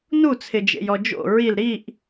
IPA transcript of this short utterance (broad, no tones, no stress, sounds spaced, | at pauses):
n u t͡sʰ ɪ d͡ʒ ḛ j ɔ d͡ʒ o̰ ɹ i l ɾ i ʔ